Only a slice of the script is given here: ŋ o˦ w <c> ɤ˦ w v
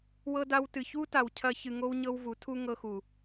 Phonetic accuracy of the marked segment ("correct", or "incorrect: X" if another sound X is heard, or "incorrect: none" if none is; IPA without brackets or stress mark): incorrect: ɲ